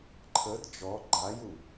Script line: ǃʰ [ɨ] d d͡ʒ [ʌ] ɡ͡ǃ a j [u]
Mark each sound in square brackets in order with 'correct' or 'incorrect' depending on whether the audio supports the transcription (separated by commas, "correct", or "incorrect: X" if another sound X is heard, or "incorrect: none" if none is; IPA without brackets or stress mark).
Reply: incorrect: ə, incorrect: ɔ, correct